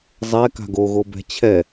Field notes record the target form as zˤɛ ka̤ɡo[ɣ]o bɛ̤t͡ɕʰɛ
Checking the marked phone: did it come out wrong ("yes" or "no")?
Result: no